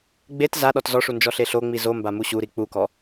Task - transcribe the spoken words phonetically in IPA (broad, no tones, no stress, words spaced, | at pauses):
ɡ͡bet za ɗɔtzɔʂu nd͡ʒɔɬeɬoŋ͡mi zomba muɕuɾi k͡pukɔ